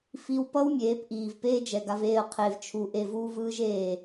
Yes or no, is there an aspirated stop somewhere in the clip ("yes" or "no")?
yes